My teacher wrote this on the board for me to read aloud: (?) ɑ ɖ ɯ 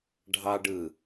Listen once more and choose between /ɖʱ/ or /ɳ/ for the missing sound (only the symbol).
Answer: ɖʱ